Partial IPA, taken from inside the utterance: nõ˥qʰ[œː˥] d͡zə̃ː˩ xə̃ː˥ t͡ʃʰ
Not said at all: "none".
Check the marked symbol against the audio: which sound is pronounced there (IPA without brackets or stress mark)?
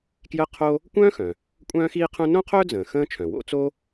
œː˥